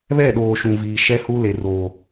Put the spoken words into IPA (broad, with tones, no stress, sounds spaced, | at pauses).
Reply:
β ɛ˦˨ ɗ oː˨ ʃ ũ˨ v iː˨ ʃ ɛ˦ h u˦ l e˨ r oː˨